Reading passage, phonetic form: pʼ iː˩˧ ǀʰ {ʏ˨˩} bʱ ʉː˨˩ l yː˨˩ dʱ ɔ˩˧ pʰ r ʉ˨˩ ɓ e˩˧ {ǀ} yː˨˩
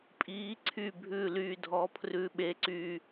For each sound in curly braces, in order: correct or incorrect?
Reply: incorrect: y˨˩, correct

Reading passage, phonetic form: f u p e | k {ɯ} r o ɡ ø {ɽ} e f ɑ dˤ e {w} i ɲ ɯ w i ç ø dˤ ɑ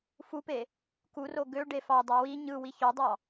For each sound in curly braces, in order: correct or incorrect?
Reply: incorrect: u, incorrect: ɖ, correct

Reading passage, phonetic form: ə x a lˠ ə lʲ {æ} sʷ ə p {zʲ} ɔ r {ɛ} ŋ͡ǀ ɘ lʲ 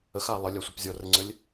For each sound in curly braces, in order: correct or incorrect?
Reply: incorrect: a, correct, incorrect: ɘ

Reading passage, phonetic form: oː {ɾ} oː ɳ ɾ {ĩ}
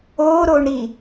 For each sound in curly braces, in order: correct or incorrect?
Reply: correct, incorrect: i

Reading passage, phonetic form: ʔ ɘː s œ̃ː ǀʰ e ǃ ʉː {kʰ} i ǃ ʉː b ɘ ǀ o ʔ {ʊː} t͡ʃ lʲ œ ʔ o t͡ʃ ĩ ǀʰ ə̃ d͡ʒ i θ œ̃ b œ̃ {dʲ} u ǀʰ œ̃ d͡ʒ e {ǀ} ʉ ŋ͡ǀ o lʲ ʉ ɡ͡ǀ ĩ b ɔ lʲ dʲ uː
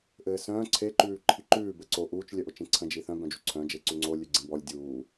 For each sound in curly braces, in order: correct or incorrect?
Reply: incorrect: ǃʰ, incorrect: uː, incorrect: d͡ʒ, correct

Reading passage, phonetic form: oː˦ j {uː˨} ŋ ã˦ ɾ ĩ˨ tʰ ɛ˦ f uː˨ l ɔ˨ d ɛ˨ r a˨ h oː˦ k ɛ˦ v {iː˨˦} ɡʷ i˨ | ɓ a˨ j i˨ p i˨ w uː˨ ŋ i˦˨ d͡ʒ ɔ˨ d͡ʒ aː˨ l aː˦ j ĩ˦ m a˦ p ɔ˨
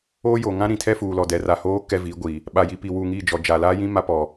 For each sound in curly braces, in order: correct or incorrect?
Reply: incorrect: oː˨, correct

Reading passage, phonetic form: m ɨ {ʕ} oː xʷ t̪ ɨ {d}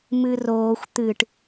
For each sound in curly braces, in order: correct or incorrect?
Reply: incorrect: r, incorrect: ʈ

